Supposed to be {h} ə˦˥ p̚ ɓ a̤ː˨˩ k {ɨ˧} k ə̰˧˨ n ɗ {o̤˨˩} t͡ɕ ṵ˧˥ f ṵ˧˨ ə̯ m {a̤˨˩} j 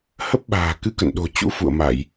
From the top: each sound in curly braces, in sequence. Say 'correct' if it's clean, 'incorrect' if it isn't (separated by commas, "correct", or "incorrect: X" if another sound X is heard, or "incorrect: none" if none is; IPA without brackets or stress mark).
correct, correct, correct, incorrect: a˧˩˨